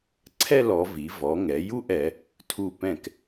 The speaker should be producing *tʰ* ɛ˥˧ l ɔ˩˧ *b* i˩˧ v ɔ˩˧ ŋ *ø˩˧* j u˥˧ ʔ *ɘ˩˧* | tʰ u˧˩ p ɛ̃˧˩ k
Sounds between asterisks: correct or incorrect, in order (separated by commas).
incorrect, incorrect, incorrect, incorrect